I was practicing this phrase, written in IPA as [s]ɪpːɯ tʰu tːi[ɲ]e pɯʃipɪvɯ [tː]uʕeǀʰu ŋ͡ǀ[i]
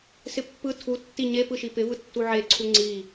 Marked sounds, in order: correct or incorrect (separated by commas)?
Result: correct, correct, correct, correct